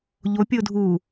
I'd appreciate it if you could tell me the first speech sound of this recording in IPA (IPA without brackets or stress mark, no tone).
ʎ